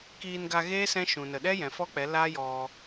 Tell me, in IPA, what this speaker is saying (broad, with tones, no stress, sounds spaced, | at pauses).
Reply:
k iː˧ n ɡ a˧ ɣ eː˦ s ɛ̃˦ ʃ ũ˨ n ə˨ ɗ ɛ˦ j ɛ̃˨ f ɔ˦ k͡p ɛ˨˦ l aː˦ j ɔ˧